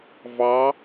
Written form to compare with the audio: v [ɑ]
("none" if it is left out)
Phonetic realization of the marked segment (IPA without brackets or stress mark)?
ɑ